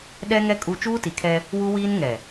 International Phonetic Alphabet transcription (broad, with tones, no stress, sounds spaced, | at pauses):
ɗ ɛ˦ ŋ ɛ˦ kʼ u˦ t͡ʃ uː˦ t i˨ kʰ ɛ˦ | w u˦ w iː˦ n ŋ ɛ˨